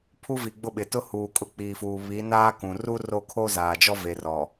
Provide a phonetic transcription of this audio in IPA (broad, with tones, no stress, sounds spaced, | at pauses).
pʰ u˦ v i˨ ɡ͡b ʊ˦˨ ɓ ɪ˨ t ʊ˦ h uː˨ kʼ ʊ˦ k͡p iː˨ f uː˨ β i˨˦ n aː˦ k ũ˨ r u˦ r o˦˨ kʰ o˦ z aː˨ d͡ʒ ɔ˦ v e˨ r ɔ˨